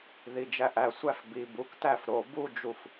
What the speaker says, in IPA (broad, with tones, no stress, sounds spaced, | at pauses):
ð i˩˧˩ d͡ʒ æ˧˩ ʔ æ˧˩ sʷ æ˥˧ f b i˩˧˩ b u˥˩ k t æ˥˩ f ɾ o˩˧˩ b u˥˧ d͡ʒ u˧˩ f